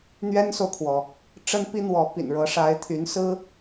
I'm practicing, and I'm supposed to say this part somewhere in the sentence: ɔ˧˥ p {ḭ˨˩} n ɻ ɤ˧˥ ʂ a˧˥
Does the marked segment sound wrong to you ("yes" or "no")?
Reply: no